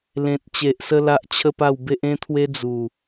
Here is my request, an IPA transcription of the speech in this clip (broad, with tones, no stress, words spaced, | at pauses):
lẽ˨t̚t͡ɕe˨ʔsə˧ la˦ʔt͡ɕʰə˥˧pa˥˧w be˦ʔẽ˦t̪ʰwe˦ d͡zu˨˩